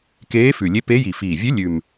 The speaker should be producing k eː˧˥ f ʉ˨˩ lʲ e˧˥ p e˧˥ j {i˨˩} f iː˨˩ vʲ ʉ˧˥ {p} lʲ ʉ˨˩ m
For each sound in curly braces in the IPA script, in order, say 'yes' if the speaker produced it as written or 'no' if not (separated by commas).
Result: yes, no